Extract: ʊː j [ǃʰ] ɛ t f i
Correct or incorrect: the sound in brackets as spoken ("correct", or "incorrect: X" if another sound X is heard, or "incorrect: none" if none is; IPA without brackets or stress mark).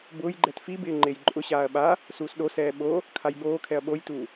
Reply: incorrect: ɡ͡ǃ